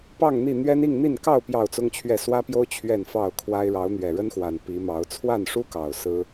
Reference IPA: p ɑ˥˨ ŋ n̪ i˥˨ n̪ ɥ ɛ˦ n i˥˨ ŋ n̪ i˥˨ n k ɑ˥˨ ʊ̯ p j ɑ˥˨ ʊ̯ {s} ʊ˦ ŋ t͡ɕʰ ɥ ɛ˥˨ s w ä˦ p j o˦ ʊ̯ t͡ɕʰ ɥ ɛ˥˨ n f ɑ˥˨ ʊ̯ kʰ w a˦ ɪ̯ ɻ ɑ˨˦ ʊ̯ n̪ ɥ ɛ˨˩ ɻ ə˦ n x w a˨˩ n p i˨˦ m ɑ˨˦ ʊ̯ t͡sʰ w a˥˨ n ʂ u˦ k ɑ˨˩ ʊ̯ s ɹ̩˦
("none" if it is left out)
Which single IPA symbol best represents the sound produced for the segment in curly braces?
t͡s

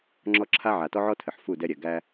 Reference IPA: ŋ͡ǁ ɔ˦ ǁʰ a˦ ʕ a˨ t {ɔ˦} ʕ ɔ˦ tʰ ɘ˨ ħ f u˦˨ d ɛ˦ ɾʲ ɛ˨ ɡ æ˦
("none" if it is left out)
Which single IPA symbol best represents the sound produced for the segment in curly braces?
ɔ˦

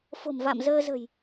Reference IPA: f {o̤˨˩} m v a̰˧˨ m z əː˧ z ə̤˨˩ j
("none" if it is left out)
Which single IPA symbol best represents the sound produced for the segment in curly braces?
o̤˨˩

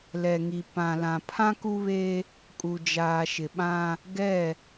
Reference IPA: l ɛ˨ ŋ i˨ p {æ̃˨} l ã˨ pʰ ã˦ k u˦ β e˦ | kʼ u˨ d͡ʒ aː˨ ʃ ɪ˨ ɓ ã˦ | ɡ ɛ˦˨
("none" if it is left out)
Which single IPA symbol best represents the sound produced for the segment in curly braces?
ã˨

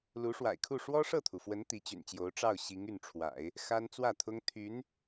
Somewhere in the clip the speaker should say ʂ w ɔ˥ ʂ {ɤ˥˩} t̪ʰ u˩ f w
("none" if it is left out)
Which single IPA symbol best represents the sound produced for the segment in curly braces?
ɤ˥˩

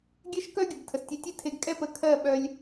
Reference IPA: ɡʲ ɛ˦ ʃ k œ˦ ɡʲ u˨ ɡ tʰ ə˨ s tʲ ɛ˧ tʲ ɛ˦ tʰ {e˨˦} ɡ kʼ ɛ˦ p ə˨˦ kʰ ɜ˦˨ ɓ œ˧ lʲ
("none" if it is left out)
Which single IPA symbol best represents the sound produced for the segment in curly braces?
e˧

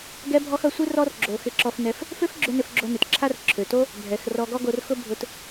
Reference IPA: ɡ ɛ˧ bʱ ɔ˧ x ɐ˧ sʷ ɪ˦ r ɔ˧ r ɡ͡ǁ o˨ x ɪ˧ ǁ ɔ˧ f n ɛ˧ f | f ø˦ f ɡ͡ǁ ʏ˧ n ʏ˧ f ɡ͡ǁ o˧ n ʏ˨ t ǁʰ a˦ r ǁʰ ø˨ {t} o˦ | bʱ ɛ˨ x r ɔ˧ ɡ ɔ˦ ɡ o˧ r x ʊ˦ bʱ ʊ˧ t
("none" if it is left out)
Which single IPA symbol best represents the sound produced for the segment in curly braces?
t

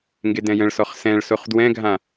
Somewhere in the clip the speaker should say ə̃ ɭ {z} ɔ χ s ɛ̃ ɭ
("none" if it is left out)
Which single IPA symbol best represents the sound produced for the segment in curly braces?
s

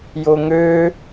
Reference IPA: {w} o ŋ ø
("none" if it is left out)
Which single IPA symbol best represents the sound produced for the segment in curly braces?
j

